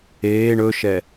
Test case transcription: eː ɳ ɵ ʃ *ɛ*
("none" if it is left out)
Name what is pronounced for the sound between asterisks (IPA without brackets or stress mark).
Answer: ɛ